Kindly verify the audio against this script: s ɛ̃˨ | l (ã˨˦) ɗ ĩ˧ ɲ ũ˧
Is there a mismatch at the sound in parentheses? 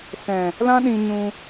yes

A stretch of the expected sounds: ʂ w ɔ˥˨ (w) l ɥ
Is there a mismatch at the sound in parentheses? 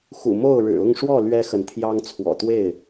yes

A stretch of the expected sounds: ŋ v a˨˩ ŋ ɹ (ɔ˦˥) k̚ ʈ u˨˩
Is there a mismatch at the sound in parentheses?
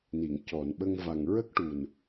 yes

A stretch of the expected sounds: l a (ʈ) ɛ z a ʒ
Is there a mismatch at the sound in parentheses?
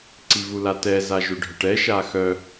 yes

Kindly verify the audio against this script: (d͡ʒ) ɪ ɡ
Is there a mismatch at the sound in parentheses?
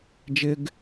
no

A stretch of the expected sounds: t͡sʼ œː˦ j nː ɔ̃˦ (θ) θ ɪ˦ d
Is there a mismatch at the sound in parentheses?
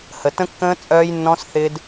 yes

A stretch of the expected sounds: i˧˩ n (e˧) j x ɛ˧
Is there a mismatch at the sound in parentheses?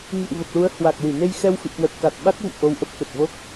no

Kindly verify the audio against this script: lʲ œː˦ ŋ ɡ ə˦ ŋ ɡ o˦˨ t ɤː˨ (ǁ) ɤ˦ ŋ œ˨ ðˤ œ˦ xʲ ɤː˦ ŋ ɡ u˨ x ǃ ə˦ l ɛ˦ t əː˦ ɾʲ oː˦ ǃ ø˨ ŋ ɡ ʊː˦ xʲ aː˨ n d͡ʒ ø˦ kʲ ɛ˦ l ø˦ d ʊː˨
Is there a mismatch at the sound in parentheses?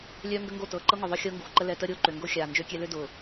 yes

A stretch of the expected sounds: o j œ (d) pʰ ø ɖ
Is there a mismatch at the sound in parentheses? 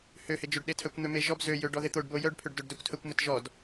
yes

